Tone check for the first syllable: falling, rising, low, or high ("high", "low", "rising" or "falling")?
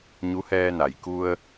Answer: rising